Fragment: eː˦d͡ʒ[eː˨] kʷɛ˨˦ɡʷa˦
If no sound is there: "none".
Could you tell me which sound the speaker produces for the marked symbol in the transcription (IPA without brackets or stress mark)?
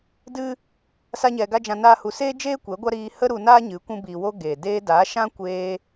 eː˦